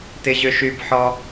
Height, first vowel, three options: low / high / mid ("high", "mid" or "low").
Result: high